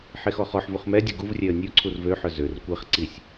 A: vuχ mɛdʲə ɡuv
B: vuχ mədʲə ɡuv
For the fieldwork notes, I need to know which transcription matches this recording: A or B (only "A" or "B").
A